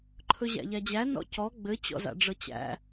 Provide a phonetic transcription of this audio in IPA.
ǃʰ ɵ ʑ æ̰ ʎ æ d͡ʑ æ n ɔ̰ c ɔ ɡ͡b ɘ t͡ɕ ɔ̰ z a̰ ɖ͡ʐ ɤ t͡ɕ æ̰

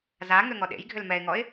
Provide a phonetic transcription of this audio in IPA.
z a ŋ ø ŋ ɔ ɗ ḛ j ɡʱ ʏ l m ɛ ɪ̯ ŋ ɔ ɪ̯

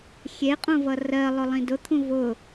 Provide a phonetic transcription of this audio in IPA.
xʲ e qʼ ũ v ʌ r ɜ lˠ ʊ lˠ ĩ d ʊ t̪ʰ ũ v ʊ

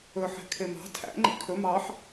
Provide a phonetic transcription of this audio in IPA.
ɵ ħ e̤ kʰ e m ɑ̤ tʰ æ̰ ŋ͡ǃ ḭ kʰ ɵ m ɑ ħ

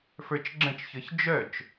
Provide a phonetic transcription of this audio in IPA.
f ə˞ t͡ʃ ɡ͡ǁ ə̃ t͡ʃ ç ə˞ ç d͡ʒ œ t͡ʃ

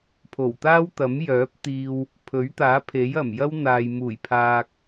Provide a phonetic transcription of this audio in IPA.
pʰ o˨˩ w t̪ aː˥ w t̪ ɐ˨˥ m j œː˨˥ p̚ t̪ iː˧ w | pʰ ɵ˨˥ ɥ t̪ aː˨˥ pʰ e˨˥ j ɐ˨˩ m j ɐ˥ w n̪ aː˨ j m uː˨˩ j pʰ aː˨ k̚

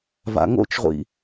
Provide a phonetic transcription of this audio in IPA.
v a̰ ŋ o̰ t͡ʃ ʁʷ ḭ

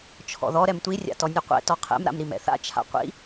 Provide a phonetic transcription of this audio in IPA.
t͡ʃʰ ɔ̰ ð ɔ ɾ ɛ m tʷ i rʲ a̰ t ɔ nʲ u qʷ ɛ̰ t ɔ qʰ ɛ̰ m ɾ a̰ m ɾ i m ɛ̰ θ a̰ t͡ʃʰ a̰ qʷ ḭ

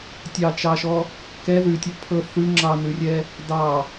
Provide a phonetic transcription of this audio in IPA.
tʲ ɑ t͡ʃ ɑ ʃ ɔ | k ɛ ð ʉ tʲ ɔ pʰ ɤ θ ʉ ŋ͡ǁ ɑ n ʉ rʲ ɛ | d ɑ

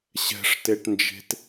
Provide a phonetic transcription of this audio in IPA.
ɕ ɛ̤ ʂ t e ʈ n d͡ʒ e̤ t

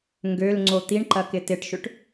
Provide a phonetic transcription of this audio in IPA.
ŋ ɡ ø l ŋ͡ǀ o t̪ i ɳ ǃ ɐ k ɪ t ɪ ʈ ʃ ʏ ʈ

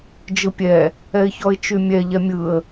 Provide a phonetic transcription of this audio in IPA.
d͡ʒ ɯ pʲ ɛ | ɛ ɪ̯ ç ɔ ɪ̯ t͡ʃ y mʲ ɛ ʎ ɛ mʲ ɯ ə̯

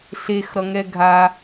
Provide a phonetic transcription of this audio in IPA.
ɬ e x ɾ ʌ ŋ ɛ ɡʱ a

